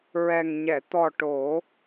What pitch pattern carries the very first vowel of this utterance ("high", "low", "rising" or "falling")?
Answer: low